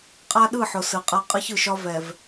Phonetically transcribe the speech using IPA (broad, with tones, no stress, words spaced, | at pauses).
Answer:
qʼa˦ɗɯ˦˨ħʊ˨ sɯ˨qʼa˦ qʼɯ˦çɯ˨ʃɒ˦ vɛ˨v